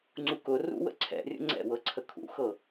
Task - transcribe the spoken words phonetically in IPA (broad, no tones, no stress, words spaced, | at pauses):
ŋ͡ǀukʊ rṵwə̰ǀʰɛ̰rʲə̰ ŋ͡ǀɛ̰wɤǀʰə kʰṵxɤ